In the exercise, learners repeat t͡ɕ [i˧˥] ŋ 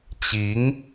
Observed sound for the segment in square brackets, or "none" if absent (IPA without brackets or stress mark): i˧˥